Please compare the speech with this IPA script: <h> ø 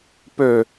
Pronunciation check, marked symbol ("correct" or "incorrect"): incorrect